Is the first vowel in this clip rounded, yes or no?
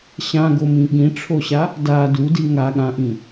no